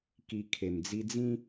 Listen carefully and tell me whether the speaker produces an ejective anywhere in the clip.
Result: no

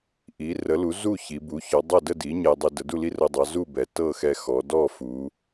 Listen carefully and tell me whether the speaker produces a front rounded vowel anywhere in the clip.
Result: no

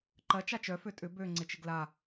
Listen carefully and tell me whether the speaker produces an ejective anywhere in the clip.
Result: yes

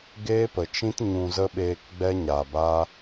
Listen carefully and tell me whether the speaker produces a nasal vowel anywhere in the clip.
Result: yes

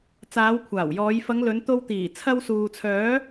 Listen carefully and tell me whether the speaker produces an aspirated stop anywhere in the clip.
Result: yes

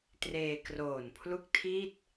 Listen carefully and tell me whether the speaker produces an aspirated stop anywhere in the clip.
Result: yes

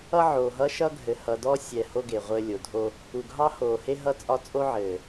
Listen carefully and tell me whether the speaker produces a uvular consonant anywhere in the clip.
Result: yes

